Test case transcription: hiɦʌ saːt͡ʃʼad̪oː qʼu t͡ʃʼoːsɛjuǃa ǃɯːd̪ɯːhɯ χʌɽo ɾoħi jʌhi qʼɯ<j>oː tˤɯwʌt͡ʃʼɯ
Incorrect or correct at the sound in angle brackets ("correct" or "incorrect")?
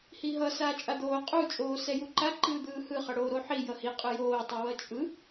correct